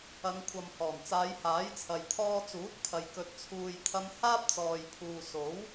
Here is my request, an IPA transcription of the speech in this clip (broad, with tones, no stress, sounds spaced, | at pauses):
ɐ˨˧ ŋ kʷʰ ɐ˨ m h ɔː˨˩ n t͡s aː˨˧ j h aː˨˥ j t͡sʰ ɐ˨ j t̪ʰ ɔː˧ t͡s uː˨˥ t̚ pʰ ɐ˨ j k ɵ˨ t̚ t͡sʰ uː˨ j t̪ʰ ɐ˧ m h aː˥ p̚ t͡s ɔː˨ j pʰ uː˨ s o˨˥ w